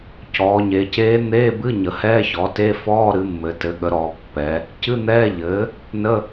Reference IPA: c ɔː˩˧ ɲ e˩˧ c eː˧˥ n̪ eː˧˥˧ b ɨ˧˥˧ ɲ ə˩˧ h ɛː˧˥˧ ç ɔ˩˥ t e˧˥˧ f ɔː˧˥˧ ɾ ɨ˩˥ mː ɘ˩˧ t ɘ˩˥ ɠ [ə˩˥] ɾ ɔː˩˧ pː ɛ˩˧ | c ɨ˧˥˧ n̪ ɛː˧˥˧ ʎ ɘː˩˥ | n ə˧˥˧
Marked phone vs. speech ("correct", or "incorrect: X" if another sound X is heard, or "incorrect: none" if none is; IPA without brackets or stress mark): correct